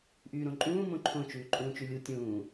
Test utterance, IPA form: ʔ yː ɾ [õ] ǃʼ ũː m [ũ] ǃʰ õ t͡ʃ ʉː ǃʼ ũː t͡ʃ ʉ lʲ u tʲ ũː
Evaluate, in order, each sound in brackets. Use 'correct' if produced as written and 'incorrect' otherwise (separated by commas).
correct, incorrect